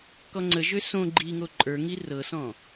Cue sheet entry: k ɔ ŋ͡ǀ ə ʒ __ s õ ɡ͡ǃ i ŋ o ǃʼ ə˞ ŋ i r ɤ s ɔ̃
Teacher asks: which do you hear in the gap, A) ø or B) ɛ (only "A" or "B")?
A